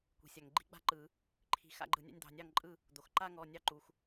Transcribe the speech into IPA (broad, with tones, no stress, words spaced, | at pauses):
kʷi̤˩sʲa˩ŋ ɡ͡ǃi̤˦ɡ͡ba̤˥˨ǃɯ˨˩˦ | ǃʰi̤˩˥xa̰˥˨ɡ͡ǃɯ˨˩˦ nʲɑ̰˦nʲd̪ɑ̤˩˧˩nʲɑ˥˨ŋǃʼɯ˥˨ | d̪o˩xǃa˦ŋɔ˩˧˩ nʲɑ˦ǃu˩x